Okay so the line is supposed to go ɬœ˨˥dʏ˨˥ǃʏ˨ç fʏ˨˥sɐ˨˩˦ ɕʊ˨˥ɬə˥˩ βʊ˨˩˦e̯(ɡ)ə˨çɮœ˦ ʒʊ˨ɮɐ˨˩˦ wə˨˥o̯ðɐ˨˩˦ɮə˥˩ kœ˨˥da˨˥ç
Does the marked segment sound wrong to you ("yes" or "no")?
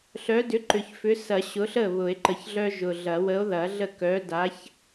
yes